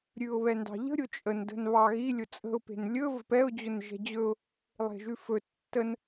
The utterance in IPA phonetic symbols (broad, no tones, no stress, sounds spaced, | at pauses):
ɾʲ ʉ ʊ̯ β ɛ n d ɑ̤ ʎ ə̤ ɾʲ ʊ t͡ʃʼ ə n d ə̤ n β ɑ ɣ i lʲ ʊ t͡sʼ ə̤ ʊ̯ p e̤ n lʲ ɵ v ə̤ p ɛ ʊ̯ d͡ʑ ʊ n ʒ ɛ̤ d͡ʑ ɵ ʊ̯ | lˠ e̤ ʒ ʉ f ɵ tː ə n